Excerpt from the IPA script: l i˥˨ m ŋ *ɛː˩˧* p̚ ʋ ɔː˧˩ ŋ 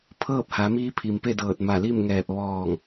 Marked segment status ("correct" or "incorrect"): incorrect